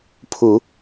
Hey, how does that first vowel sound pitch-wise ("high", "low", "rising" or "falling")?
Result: rising